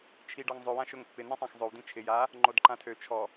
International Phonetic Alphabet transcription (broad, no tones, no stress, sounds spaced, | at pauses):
t͡ʃʰ i ɖ ɒ ŋ zˤ ɵ w ã ʃ ɵ ŋ pː ɪ n ĩ sˤ ã x zˤ ɵ w d ĩ t͡ʃʰ ɪ j a | ŋ͡ǃ o d ǃ ã tʰ ø t͡ʃʰ ɔ